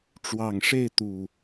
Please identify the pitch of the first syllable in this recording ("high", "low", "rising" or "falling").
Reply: low